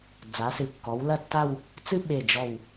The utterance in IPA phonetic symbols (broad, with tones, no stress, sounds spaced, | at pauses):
d͡z a˩˧ s ɨ˩˧ kː ɔ˩˧ w l ɐ˥˧ tː a˥˧ w | t͡s ɨ˥ ɓ e˧˩ d͡ʒ ɔ˧˩ w